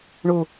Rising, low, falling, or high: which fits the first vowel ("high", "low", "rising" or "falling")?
low